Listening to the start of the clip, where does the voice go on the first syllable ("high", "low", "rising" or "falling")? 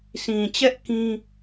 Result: low